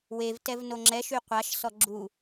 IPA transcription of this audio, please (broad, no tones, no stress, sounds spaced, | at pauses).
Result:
w e v t ɛ v n o ŋ͡ǁ ɛ ʃ y qʷ a ʃ s ɔ ɡ͡ǁ u